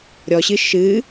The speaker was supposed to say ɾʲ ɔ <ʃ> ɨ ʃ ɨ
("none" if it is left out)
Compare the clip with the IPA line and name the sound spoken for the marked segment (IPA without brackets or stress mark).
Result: ɕ